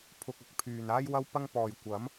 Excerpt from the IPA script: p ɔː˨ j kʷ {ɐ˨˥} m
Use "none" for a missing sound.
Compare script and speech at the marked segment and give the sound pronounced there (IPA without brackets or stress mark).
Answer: ɐ˨˥